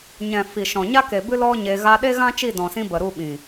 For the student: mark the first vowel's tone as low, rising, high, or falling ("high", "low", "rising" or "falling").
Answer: low